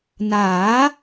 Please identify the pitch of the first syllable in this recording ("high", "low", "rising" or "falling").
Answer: rising